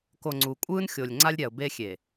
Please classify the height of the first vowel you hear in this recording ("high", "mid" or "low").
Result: mid